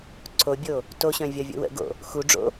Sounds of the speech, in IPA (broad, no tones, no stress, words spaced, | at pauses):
ǀʰobʲo | toɕœ̃ vʲɒvʲo̰wə̰ɡo̰ | xuɖ͡ʐo̰